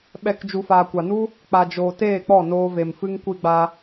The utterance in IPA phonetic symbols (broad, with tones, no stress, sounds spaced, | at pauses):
ɓ ɛ˧ k d͡ʒ u˨ f aː˨ kʷ a˨ n u˦ | k͡p a˨ d͡ʒ oː˨ t eː˦˨ k͡p ɔ˦˨ n oː˧ v e˨ m f ɨ˧ ŋ kʷ i˧ ɡ͡b a˧